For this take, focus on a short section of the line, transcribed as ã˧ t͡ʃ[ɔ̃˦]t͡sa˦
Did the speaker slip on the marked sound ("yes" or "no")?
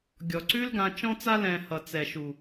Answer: no